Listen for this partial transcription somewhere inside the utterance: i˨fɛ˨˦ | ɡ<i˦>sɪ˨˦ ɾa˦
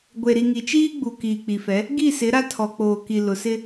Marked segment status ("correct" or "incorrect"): incorrect